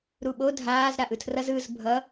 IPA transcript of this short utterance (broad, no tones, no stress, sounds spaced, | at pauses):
ɾ u ɓ o dʱ aː z ɾ a ʔ ɯ tʰ r ʌ z ɯ z bʱ ʌ